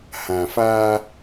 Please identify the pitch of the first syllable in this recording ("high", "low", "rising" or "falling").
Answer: low